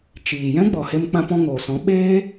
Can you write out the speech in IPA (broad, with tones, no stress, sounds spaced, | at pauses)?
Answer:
t͡ʃ iː˨ j ɛ̃˦ ɡ͡b ɔ˨ h e˧ m k͡p ã˧ p ɔ̃˧ ŋ oː˨ s ɔ̃˨˦ ɓ eː˦